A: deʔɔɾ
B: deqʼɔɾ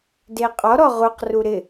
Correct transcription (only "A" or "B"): B